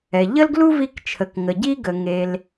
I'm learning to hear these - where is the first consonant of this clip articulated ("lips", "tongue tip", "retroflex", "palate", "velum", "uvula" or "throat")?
palate